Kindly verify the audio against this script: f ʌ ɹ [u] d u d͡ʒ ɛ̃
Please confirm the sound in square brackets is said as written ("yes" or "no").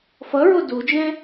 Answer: no